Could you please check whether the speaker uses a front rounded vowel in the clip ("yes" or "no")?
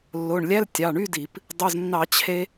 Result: yes